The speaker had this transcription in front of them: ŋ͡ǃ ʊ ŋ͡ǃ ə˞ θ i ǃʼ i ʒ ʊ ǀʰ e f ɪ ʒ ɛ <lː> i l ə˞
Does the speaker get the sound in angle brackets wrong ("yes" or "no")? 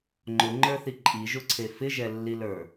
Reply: no